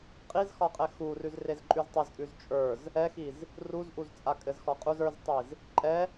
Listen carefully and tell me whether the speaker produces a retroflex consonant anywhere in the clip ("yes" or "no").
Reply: no